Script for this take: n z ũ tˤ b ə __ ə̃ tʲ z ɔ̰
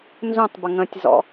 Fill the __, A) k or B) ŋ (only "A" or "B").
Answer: B